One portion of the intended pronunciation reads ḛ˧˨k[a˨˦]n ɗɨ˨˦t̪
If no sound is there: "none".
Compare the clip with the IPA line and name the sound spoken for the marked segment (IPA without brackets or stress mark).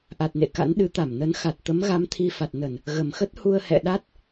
a̰˧˥